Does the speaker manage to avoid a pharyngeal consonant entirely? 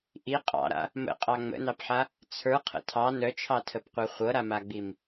no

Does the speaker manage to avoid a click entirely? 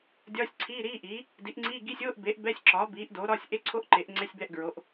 no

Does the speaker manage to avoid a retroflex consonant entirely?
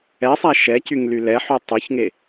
yes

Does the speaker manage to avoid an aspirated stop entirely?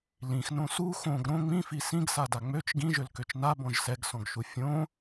yes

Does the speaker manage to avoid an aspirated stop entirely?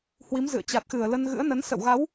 yes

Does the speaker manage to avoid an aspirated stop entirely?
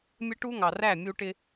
yes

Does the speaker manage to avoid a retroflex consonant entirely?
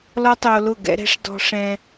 no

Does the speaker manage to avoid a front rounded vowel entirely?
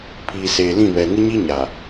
yes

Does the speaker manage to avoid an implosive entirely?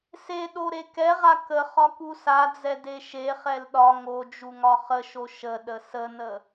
no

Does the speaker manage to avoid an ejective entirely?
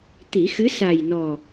yes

